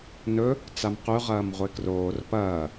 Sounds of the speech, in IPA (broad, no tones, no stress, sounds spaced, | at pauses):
n ɵ | t͡s a m q ʉ ʁ ɐː m ʁʷ e k r oː r p ɐː